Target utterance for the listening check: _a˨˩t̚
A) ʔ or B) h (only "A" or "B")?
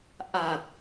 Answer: A